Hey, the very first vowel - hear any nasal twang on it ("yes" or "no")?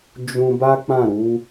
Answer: yes